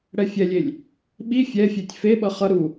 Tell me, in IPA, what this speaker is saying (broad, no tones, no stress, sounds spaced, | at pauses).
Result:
ɽ ɛ fʲ ɛ lʲ e lʲ | ɓ i fʲ ɛ fʲ e tʲ f e ɓ ʌ χ ʌ ɾ u